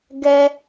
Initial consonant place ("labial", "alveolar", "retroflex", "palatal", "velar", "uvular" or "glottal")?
velar